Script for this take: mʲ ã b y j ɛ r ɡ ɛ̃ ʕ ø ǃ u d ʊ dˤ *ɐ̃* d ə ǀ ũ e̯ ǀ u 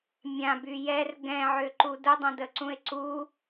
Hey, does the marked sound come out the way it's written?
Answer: yes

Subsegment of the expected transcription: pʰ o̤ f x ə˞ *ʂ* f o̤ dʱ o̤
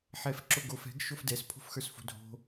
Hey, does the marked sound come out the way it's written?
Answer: no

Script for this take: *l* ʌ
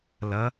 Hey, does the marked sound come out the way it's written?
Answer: yes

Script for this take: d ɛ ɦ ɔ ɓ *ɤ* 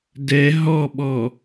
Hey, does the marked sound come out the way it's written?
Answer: no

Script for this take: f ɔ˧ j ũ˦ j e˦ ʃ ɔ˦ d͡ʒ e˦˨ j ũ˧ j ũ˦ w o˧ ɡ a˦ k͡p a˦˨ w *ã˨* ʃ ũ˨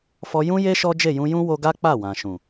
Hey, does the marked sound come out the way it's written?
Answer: yes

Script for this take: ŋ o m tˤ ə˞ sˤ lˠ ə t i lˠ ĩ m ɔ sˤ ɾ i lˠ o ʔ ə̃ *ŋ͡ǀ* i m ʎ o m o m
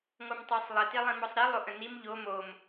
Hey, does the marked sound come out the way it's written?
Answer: no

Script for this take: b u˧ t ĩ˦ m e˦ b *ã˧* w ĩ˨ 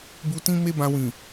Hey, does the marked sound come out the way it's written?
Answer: yes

